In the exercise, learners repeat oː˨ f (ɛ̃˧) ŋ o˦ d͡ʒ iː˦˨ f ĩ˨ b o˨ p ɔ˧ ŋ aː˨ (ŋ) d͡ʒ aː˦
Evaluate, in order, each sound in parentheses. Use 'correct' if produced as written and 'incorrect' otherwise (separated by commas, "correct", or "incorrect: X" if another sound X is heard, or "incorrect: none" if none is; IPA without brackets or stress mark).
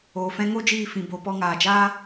correct, incorrect: none